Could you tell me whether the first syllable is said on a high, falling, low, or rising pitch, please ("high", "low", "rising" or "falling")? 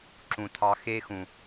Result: low